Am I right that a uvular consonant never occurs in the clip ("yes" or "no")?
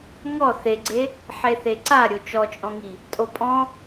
yes